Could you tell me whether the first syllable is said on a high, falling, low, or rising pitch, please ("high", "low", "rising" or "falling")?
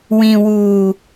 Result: low